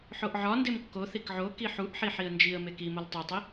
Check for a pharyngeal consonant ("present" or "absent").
present